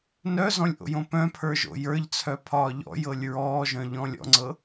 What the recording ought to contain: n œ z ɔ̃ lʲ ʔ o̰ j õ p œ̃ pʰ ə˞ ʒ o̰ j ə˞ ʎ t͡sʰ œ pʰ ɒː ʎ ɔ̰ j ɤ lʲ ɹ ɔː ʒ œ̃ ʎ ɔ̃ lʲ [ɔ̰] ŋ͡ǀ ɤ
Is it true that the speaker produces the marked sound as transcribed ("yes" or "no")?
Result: yes